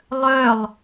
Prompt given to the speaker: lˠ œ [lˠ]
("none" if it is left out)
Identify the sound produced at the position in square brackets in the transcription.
lˠ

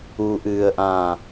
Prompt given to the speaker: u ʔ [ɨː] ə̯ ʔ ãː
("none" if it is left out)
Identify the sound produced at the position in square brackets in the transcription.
ɨː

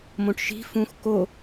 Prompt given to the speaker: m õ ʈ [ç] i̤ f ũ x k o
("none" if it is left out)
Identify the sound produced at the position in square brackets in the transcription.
ʃ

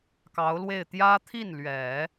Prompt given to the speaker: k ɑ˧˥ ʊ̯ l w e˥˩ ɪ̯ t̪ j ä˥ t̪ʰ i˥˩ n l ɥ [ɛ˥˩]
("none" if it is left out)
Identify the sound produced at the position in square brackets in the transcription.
ɛ˨˩˦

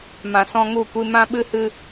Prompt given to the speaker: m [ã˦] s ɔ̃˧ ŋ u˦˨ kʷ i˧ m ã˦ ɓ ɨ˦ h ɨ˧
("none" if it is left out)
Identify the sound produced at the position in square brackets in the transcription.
ã˨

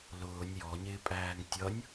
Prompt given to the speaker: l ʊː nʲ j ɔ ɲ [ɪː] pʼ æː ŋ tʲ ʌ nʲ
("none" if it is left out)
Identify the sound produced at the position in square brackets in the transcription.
ɪː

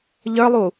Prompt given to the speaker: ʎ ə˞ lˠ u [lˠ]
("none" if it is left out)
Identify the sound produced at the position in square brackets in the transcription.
none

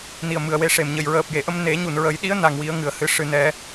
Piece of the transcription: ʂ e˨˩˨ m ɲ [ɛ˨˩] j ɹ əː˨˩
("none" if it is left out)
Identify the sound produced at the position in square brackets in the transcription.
ə˨˩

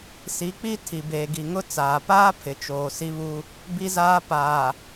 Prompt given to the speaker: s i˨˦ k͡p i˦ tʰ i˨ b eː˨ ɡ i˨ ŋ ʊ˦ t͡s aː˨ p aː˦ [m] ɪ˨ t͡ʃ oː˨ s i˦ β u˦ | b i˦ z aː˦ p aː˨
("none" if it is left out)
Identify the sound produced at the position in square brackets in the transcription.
pʰ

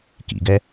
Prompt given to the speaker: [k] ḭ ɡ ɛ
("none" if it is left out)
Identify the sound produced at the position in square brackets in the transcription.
k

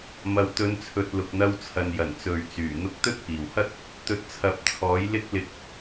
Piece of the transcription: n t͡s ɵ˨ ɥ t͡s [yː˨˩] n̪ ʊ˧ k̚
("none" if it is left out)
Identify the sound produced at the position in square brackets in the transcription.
yː˨˩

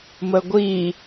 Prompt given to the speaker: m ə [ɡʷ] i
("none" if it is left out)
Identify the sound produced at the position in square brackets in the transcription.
ɡʷ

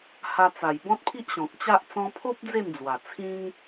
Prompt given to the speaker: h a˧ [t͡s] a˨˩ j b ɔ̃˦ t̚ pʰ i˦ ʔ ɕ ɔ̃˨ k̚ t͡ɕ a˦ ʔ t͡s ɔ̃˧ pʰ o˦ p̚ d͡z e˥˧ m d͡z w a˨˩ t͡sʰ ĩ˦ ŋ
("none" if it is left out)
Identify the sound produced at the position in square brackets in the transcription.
t͡s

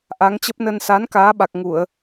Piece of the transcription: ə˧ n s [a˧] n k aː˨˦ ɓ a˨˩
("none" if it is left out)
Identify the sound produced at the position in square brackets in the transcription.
a˨˦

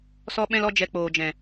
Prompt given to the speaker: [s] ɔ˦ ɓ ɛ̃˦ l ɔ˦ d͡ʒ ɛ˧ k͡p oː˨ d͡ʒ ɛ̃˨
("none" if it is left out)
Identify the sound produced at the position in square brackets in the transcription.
s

